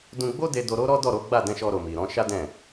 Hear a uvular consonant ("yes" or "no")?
no